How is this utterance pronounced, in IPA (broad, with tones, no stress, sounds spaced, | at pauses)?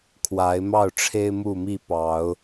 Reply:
kʰ w a˨˦ ɪ̯ m ɑ˥˨ ʊ̯ ʈ͡ʂʰ e˦ ɪ̯ m u˥˨ m i˥˨ p ɑ˨˦ ʊ̯